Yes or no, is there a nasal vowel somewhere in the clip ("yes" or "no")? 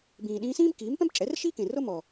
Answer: yes